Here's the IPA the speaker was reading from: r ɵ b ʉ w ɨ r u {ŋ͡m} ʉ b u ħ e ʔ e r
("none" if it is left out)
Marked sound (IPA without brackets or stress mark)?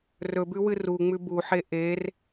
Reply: ŋ͡m